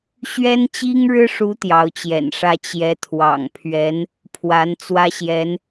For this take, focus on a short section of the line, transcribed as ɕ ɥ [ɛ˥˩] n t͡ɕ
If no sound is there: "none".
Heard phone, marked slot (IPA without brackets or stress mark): ɛ˥